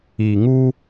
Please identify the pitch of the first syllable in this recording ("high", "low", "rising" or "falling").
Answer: low